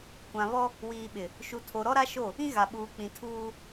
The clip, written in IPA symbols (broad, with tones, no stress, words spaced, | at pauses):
kʷã˨ βɔ˦ | wiː˨ɓɪ˨ | ʃu˨tʰo˨ ɾɔ˦ɾa˦ʃo˦˨ | ĩ˦ɣa˨ ɓuː˨k͡pĩ˨ tʰuː˦